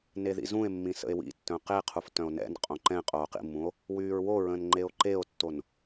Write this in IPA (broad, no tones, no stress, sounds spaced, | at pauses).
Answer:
n e ð ḭ z ũ e̯ mː ĩ s ə̰ e̯ w ḭ tː œ̃ q e qʰ u f t œ̃ o̯ n ɛ̰ n qʼ õ ǃ ɛ̃ qʼ oː q ḭ mː ũ o̯ | w yː ɹ w o ɹ ə̃ː n ŋ͡ǃ e o̯ ǃ e o̯ tː o n